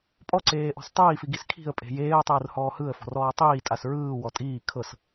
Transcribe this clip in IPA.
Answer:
pʼ ɔ ǀ eː ʔ ɔ̤ s tˤ iː f i ɡ i s kʰ i̤ ə̯ pʼ e̤ j eː ə̯ tˤ ɯː r h ɔː h ɯ ə̯ f ɔ̤ r ɔː tˤ iː tʼ a s ɹ ɯː w ɔ tʼ iː kʰ ɤ s

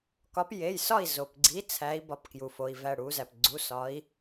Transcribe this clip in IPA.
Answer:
k ɒ˨˦ p j e˩˧˩ j s ɒ˥˨ i̯ z o˩ p ɡ͡ǀ i˨˦ t͡sʰ æ˨˦ i̯ b ɒ˩˧˩ p k j u˩ f o˩˧˩ i̯ v æ˥˨ ɽ u˨˦ z æ˩ p ɡ͡ǀ u˩˧˩ s ɒ˨˦ i̯

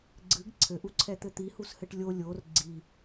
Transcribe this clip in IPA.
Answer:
ɡ͡ǀ ɨ ɡ ǀʰ ɘ ʔ u ǀʰ ɛ t̪ ɘ t̪ i h u s h ɘ ʈ lʲ o lʲ o r ɡ͡ǀ i

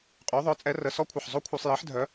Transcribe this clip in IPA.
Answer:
qʼ y˨˦ ðˤ œ˨˦ t͡sʼ ɛ˨˦ r ə˩˧˩ s ɔ˦˥ kʷʰ ə˩˧˩ ħ zˤ o˦˥ kʷʰ œ˧˩˧ sˤ j i˨˦ ħ dʱ œ˨˦

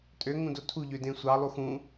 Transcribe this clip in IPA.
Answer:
tʼ ø ŋ ũ d o tʰ u ʎ ø d ẽ sʷ ɑ lˠ u x ũ

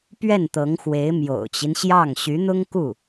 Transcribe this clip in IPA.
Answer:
p ɥ ɛ˥˩ n t̪ ɤ˧˥ ŋ x w e˧˥ ɪ̯ m j o̰˨˩ ʊ̯ t͡ɕ i˦ n ɕ j ɑ˥˩ ŋ ɕ y˧˥ n̪ ʊ˥ ŋ k u˥˩

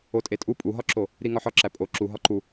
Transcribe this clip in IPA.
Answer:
o tʼ e tʼ u pʼ u ɦ ɒ ǁ o | ɾ i ŋ ɒ ħ ɒ ǁ æ pʼ o ǁ u ɦ ɒ ǃ u

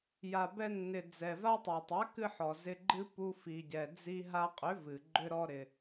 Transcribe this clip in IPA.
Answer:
j a˨ b ɛ˧ nː ɪ˨ d͡z ɛ˨ v a˦ tˤ a˨ tˤ a˨˦ k ɨ˧ ħ ɔ˨ z ɪ˧ ɡ͡ǃ ɨ˦ p u˧ f i˨ ɟ ɛ˨ d͡z i˧ ɦ a˧ qʼ ʏ˨˦ v ɨ˨ ɡ͡ǃ ʏ˦ ɾ ɔ˦ ɾ ɪ˧

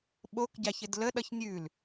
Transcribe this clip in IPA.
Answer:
ɓ o k ɟ a ç ɘ d l ə ɗ ʌ ç nʲ ʉ l

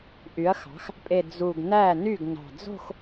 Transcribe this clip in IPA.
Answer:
ʔ y˩˥ ɐ̯ x ɑ̤˩˥ x | pʼ e˨˩ d͡z u˨˩ ɡ n æ˥˩ n y˥˩ ɡ n ɑ̤˨˩ d͡z o̤˥˧ x

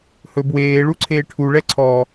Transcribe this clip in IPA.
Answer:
h ɵ b w eː ɭ u ǀʰ eː ʈʰ u ɭ ɛ ǀʰ ɔ

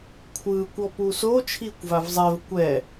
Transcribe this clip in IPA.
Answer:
kʷʰ ɯː kʷ ɔ p u s o t͡ʃʰ iː kʷ v a v zˤ ɛ v kʷ ɛ

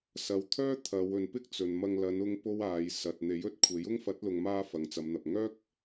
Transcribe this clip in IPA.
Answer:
s ɐ˨˧ w t̪ʰ œː˥ t̪ʰ ɐ˨˧ w ɵ˨ n p ɪ˥ k̚ t͡s ɵ˨ n m ɐ˧ ŋ l ɐ˨˧ n ʊ˥ ŋ p o˥ w aː˨˧ j s ɐ˨ t̚ n̪ e˨˥ j ɵ˥ t̚ kʷʰ e˨˥ j ʊ˥ ŋ f ɐ˨˥ t̚ l ʊ˨ ŋ m aː˧ f ɐ˨˧ ŋ t͡s ɐ˨˧ m n̪ ɐ˨ p̚ ŋ œː˥ k̚

